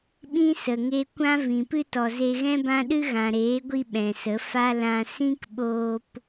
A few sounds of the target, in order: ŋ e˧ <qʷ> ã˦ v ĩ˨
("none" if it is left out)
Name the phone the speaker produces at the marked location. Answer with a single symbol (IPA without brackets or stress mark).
kʷ